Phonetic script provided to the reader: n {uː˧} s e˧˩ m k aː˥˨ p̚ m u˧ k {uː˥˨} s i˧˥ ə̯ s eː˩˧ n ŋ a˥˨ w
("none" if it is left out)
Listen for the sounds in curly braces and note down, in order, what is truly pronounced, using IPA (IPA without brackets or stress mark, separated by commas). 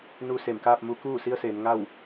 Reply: uː˧, uː˥˨